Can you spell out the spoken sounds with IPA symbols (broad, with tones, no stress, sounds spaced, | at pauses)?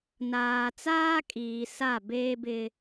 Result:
n aː˨ t͡s aː˦ kʼ iː˨ s a˦˨ b eː˦ b ɪ˦